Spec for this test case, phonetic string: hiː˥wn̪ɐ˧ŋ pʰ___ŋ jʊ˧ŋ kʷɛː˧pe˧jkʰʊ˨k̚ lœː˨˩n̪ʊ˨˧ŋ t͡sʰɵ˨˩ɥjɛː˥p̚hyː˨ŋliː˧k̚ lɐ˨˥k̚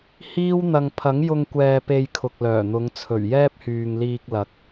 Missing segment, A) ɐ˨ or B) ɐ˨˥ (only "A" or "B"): B